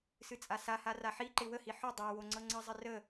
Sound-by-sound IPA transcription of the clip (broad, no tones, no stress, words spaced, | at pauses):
sɨt͡sʼasaha raħiǃɪ wəhi ħʊ dˤɤwo ŋ͡ǀɤŋ͡ǀəzˤɪ rə